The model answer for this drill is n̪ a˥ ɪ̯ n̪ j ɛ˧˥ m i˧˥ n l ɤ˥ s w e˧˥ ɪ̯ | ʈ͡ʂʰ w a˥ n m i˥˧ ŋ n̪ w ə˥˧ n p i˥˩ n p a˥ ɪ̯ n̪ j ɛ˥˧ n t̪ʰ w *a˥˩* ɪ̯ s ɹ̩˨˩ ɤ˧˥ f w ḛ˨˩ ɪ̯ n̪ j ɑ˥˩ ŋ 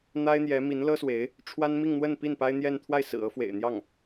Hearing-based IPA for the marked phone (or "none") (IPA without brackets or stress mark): a˥˩